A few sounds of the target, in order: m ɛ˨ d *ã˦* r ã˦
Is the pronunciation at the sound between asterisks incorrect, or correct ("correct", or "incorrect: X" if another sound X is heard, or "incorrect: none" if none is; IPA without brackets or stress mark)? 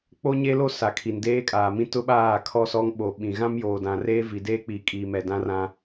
correct